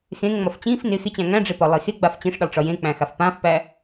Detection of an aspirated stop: absent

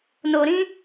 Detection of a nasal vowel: present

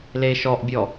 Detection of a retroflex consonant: absent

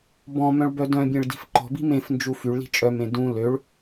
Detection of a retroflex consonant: present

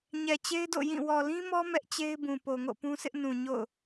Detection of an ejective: absent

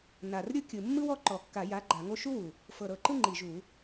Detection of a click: present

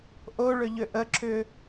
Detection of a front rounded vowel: present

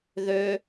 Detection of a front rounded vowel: present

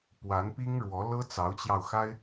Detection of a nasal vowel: absent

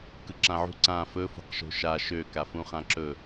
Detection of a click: present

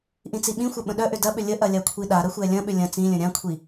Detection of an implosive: present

